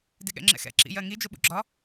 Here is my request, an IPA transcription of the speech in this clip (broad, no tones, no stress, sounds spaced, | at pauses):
d ɪ ɠ ɛ̰ ŋ͡ǁ ɛ̰ x ɛ̰ ǁ ḭ j ɜ ŋ i d͡ʒ ʊ ɓ ṵ ɡ͡ǁ ɒ